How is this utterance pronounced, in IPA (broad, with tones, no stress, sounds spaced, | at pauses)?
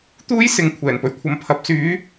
t̪ uː˥ j s ɪ˨˥ ŋ kʷʰ ɛː˨˩ n p ɵ˨˩ ɥ kʷʰ ɐ˨˧ m pʰ ɐ˨ p̚ s yː˨˧